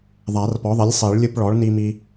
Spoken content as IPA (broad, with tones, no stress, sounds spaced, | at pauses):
ðˤ a˨˩˦ r p ɔ˩˥ ðˤ i˩˥ lʲ sˤ i˨˩˦ ɭ lʲ ɯ˦ p ɭ ɔ˩˥ ɭ n i˦ m i˦